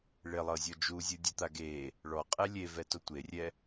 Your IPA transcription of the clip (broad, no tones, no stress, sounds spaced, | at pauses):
ɭ e lˠ ɤ zʲ ɔ d͡ʒ u zʲ ɯ dʲ u t̪ a ɡ e | ɭ ɔ qʼ ɛ lʲ e v ɛ t o tʷ e rʲ ɛ